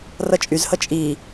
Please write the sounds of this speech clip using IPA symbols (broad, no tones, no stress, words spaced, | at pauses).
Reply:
rʌt͡ʃʼyzhʌ t͡ʃʼi